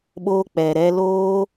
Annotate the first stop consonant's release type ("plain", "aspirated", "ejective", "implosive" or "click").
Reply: implosive